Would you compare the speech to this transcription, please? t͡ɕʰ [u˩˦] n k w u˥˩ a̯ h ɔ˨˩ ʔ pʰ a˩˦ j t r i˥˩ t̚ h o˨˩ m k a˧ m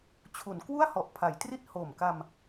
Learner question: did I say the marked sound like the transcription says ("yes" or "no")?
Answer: yes